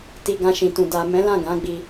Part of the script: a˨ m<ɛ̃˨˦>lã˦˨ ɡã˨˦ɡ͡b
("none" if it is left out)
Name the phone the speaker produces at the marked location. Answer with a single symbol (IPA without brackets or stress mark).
ɛ̃˨˦